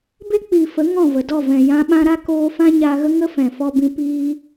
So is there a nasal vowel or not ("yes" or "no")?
yes